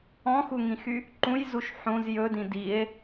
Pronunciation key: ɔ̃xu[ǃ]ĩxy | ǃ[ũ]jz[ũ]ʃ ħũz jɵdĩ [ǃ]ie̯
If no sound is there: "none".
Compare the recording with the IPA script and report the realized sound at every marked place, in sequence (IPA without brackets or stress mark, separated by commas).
ŋ, ũ, u, d